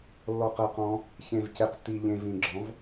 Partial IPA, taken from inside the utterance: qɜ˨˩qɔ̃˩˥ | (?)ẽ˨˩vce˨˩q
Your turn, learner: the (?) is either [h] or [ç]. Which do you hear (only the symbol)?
ç